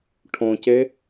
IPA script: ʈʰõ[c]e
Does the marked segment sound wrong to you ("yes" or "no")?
no